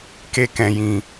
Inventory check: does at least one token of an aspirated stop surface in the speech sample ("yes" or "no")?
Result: no